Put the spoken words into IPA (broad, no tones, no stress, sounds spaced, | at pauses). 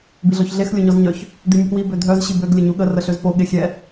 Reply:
b i ɮ ɔ ç ɮ e x lʲ o ɲ ɔ z ɲ œ ç | d i mʲ ə p w i b ø dʱ œ z ɕ i b ø ɡ lʲ ə ɲ u ɠ ə r ə ɬ ø z p o ɠ e xʲ ɛ